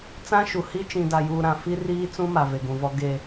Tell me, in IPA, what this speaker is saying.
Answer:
t͡s ã˦ ʃ u˨ h i˦ t͡ʃ ĩ˨ d a˨ j uː˨ ɾ ã˨ f i˦ r iː˦ t͡s ũ˦ m a˨ v e˨ ɡ ũ˨ v ɔ˦ ɡ e˦

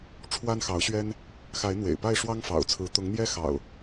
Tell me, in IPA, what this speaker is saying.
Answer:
ʈ͡ʂʰ w a˦ n x ɑ˨˦ ʊ̯ ɕ ɥ ɛ˦ n | x a˨˦ ɪ̯ n̪ w ḛ˨˩ ɪ̯ p a˥˨ ɪ̯ ʂ w ɑ˦ ŋ f ɑ̰˨˩ ʊ̯ t͡sʰ ɹ̩˨˦ t̪ ʊ˨˦ ŋ n̪ j ɛ˦ x ɑ̰˨˩ ʊ̯

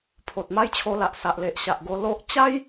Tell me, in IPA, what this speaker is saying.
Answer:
pʰ o˨ t̚ m a˦ j t͡ɕʰ o˧ l a˨ ʔ s a˨ ʔ l e˨ ʔ ɕ a˨ ʔ ɡ o˧ l o˦ ʔ t͡ɕ a˦ j

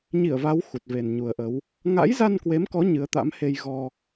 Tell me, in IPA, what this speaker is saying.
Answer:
ɲ i˧˩ ə̯ v a˨˦ w x u˨˩ t̚ v e˨˩ n ɲ u˨˩ ə̯ ʔ ə˨˦ w | ŋ a̰˧˥ j z a˧ n k w e˨˦ m k ɔ˨˦ ɲ ɨ˨˦ ə̯ t̪ a̰˧˥ m h e˧ j ɣ ɔ˧

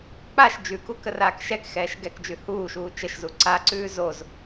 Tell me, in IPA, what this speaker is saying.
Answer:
k͡p a ʃ d͡ʒ ʉ k u k ə r aː k ʃ ɛ k x ɛː ʃ ɡ ɛ k d͡ʒ ʉ h uː ʃ uː t͡ʃ ə ʃ z u ǀ a ǀ ʉː z o z

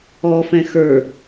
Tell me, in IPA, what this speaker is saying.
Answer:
ɔ f ɛ̃ x ə˞

